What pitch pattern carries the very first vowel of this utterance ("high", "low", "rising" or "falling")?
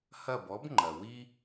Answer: falling